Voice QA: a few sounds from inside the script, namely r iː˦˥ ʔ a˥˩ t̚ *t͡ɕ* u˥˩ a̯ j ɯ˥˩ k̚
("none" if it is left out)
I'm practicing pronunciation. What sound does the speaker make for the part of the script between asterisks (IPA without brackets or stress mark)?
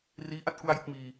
k